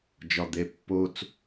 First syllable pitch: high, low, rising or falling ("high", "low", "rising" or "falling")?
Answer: low